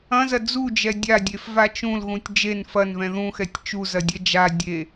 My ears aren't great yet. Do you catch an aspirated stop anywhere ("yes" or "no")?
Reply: no